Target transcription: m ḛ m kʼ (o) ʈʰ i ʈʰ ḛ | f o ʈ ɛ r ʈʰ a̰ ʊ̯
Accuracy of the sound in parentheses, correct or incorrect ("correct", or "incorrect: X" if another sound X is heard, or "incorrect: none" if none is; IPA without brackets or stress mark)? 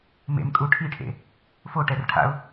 incorrect: u